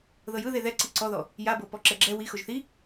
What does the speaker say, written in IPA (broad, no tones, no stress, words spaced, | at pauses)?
ðɤjɯðe ðɛǀi ǀɔðɔ | jabɤpɔ ǁɛɡ͡ǁɛ wi xoʒθi